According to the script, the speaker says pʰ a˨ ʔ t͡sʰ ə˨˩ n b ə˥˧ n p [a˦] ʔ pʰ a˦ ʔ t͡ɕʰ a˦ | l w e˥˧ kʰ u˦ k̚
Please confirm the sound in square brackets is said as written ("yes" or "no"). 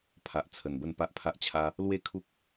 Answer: yes